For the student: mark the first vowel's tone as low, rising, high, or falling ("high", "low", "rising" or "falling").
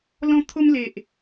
high